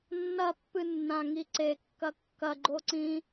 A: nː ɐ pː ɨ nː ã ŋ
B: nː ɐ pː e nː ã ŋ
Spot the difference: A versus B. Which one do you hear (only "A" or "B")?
A